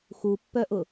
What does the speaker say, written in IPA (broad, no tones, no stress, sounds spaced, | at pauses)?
x u pː œ ʔ ʊ